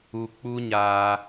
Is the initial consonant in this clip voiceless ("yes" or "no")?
yes